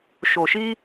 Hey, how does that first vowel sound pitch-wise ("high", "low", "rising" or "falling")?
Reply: low